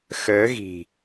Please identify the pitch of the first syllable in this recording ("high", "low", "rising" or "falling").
rising